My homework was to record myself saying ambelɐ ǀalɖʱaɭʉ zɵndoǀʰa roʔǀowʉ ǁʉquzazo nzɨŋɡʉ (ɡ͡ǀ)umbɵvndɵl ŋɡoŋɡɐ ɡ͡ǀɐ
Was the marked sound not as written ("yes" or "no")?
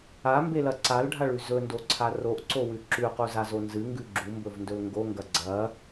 yes